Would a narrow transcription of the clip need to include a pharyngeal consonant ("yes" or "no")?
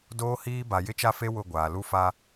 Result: no